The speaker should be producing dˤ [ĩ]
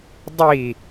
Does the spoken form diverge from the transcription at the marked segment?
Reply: yes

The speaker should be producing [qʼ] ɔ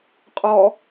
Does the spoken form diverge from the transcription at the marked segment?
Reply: no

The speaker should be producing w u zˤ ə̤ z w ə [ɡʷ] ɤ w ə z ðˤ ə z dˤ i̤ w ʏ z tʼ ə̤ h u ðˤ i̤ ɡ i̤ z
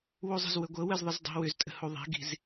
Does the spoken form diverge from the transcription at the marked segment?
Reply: no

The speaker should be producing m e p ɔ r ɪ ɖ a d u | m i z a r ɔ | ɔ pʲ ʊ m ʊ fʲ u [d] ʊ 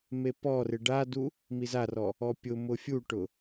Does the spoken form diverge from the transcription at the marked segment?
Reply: yes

